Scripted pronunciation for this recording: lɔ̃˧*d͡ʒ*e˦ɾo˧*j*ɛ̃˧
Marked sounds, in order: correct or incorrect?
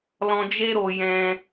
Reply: correct, correct

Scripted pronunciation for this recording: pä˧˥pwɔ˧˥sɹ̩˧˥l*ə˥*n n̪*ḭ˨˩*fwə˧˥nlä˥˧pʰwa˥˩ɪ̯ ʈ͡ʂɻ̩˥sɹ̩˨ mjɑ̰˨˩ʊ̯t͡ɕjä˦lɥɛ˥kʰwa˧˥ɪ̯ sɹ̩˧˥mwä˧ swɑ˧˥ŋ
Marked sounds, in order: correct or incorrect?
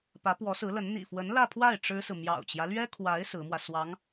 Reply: incorrect: ə˧˥, correct

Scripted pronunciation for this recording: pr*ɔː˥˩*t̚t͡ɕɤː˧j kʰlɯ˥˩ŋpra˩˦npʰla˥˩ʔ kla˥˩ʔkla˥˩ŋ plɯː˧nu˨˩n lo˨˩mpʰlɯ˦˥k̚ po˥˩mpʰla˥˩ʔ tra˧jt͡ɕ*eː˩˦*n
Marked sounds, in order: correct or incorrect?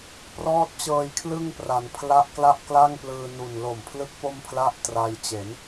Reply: incorrect: ɔː˦˥, incorrect: e˩˦

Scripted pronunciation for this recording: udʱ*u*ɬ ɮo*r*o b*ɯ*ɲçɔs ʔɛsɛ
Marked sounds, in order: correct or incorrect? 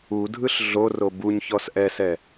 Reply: incorrect: ɯ, correct, incorrect: u

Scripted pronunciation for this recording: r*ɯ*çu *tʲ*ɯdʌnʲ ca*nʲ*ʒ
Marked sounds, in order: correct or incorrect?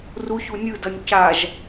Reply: incorrect: u, incorrect: nʲ, incorrect: none

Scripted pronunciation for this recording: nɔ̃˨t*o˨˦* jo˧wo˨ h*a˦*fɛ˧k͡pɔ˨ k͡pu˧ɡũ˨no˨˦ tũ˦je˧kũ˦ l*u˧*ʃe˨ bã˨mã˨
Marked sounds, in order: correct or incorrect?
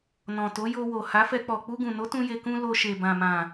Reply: correct, incorrect: a˨˦, incorrect: o˧

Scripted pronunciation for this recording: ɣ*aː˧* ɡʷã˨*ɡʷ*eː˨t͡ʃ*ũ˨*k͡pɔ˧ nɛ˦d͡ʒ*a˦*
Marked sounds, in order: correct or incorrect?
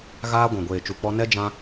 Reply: incorrect: aː˦, correct, incorrect: u˨, incorrect: ã˦

